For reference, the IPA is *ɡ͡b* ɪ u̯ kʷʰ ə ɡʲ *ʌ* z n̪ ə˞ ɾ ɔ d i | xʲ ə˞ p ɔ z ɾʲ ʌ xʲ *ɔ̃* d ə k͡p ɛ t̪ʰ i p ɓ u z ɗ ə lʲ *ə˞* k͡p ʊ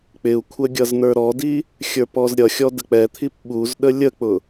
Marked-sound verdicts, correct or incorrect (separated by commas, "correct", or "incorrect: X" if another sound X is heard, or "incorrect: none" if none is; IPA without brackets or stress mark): incorrect: k͡p, correct, incorrect: ɔ, incorrect: ə